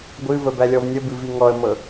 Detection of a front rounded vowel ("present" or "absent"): absent